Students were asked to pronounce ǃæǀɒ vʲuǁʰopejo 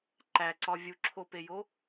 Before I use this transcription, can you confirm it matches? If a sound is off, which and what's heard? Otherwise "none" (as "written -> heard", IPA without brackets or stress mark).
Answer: none